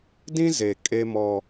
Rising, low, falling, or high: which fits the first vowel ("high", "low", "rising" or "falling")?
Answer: high